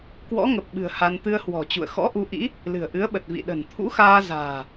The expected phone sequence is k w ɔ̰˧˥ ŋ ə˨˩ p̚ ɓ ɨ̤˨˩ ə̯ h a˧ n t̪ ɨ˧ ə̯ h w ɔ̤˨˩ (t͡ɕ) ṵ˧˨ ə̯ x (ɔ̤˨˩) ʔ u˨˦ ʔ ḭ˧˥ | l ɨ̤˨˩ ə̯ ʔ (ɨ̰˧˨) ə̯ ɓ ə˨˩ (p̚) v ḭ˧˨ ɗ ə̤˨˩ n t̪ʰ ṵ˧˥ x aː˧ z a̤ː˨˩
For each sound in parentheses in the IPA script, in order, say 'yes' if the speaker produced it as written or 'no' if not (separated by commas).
yes, no, no, no